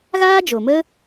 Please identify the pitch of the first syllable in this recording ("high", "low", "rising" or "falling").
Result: high